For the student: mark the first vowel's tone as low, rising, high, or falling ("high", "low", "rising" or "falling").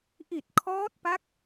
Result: low